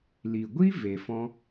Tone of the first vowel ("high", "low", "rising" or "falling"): low